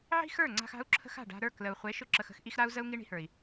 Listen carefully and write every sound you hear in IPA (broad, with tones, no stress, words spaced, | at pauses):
ʕi̤˦xə˞˦˨ŋ͡ǀa̤˧x a̤˦u̯ǁʰə̤˦x a̤˦˨ɖa̤˧ɾə˞˦˨ klə˨u̯χʷe˨˦ ʃʊ˦ǁə˧xə̤˦x ʔi˦x ɾa˦u̯ zə˦u̯ŋi˦ɳi̤˧hə˞˨i̯